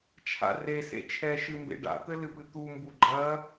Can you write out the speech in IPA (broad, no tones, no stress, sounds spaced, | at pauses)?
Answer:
t͡ʃʰ a̰ r e s ḛ t͡ʃʰ ɛ ʃ ɨ m b ḛ ɖ a̰ t̪ ɘ l ɨ p ɨ t̪ u m b u ɡ͡ǃ ɐ